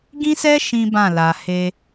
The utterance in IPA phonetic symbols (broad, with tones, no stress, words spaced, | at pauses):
ɡĩ˦sɛ˦ ʃĩ˦bã˦˨la˨ he˧